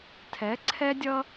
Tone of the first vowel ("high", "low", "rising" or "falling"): rising